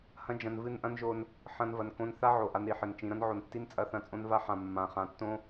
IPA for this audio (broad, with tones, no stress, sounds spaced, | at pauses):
h ɐ̃˦ d͡ʒ ɐ̃˧ n v ɨ˦˨ n ʔ ɐ̃˦ n ʒ o˧ n | ħ ɐ̃˦ n v ɐ˧ n k õ˦ n θ a˦ ʕ o˨ ʔ a˧ n ɾ i˨ ħ ɘ˨ n t͡ʃ ĩ˨ ɾ ɐ̃˦ n ʕ o˨ n tː i˦ n t͡sʼ ɐ˧ θ ɐ̃˧ t͡sʼ õ˦ n v a˦ ħ ã˨ mː ã˨ χ ã˨ tː õ˦